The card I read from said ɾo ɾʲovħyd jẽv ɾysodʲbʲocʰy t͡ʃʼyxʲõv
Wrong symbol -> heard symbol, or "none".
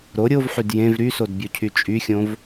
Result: dʲ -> d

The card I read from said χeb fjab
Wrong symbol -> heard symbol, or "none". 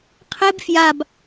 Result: χ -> qʰ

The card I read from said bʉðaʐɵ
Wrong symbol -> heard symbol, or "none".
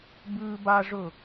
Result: ð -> b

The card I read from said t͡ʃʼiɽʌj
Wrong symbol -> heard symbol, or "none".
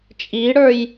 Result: ʌ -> ə˞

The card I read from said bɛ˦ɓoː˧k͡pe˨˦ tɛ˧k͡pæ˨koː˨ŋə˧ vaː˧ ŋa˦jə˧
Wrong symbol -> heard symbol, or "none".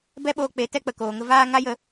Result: æ˨ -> ə˨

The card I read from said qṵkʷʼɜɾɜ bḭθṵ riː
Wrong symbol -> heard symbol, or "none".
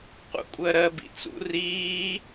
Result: θ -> t͡s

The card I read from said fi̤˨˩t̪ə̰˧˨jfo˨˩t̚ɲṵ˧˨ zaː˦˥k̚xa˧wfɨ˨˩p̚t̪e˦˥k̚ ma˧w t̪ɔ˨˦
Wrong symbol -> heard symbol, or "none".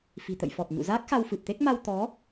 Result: o˨˩ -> ɔ˨˩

